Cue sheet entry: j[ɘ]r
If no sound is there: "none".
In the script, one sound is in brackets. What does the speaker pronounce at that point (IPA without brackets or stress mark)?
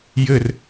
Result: ɘ